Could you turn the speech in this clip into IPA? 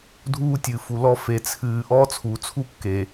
dʱuː˦tʲɨ˨fu˨lɔ˦ fe˨t͡sʰɨː˨ʔɔ˦ t͡sʰu˨t͡sʰu˦ kːeː˨

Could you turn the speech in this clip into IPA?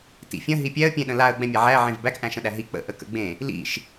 tḭfʲə̃ ɦipʲɛə̯ pʲẽɗə̃laə̯ ɡ͡bɛ̃mʲaʕæ ʕẽvbæk ʔæ̃ʃə̃ɗæɦi k͡pə̰ ʔəkə̰ɡ͡bẽ | lḭʃ

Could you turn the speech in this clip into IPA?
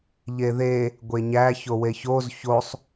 ʎeðe | ɡʷeɲæ çoweçoz çosˤ

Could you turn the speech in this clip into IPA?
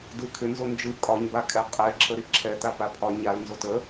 dɯkʰʏ nzond͡ʒɯ kʼɒɲ bakʼɛqʼɛ ǁʰəɾiǁʰɛ t̪apapʰɒ ɲal nzotə

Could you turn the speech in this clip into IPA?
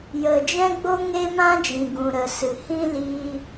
jə˨d͡ʒɛ̃˦ɡ͡bo˦ ŋe˦mã˦d͡ʒĩ˨ ɡũ˨ɾə˨ sɨ˨hĩ˦liː˧

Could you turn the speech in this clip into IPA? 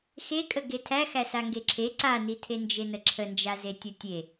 xekʼə ɡetʰæ xæsaŋɡeǁʰe ǀanitʰe nd͡ʒenəǁʰənd͡ʒa zetʲətʲe

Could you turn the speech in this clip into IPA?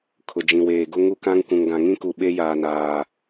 kʰʊ˨ d͡ʒĩ˨weː˨ ɡʊ˦ ŋu˦kã˦ŋ kʷũ˨ŋɡã˨ ŋĩ˦ku˨ ɓe˦jaː˨naː˨

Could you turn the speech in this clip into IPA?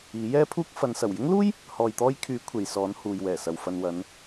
iː˨˥jɛː˥pʰuː˥k̚ fɐ˨˧nsɐ˨˩w jɪ˥ŋluː˥j | hɔː˧jt̪ɔː˥j kʰyː˨˥ kʷʰe˨jsɔː˨˥n huː˨jwɛː˨˩sɐ˨w fɐ˨nwɐ˨˧n

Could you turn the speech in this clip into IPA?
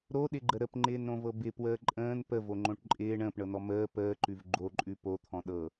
ɾoɗɪɡ͡ǃə ɾəpŋ͡ǃɪːnɾõvɤ bɪpwəː ǃʼə̃ːn pəvoŋ͡ǃõʈ ǃʼɪː ɳə̃ːpɳɤnɔ məː pəːǃʉv ɡ͡ǃoǃʼʉ pot̪ʰɔ̃ ɗɤ

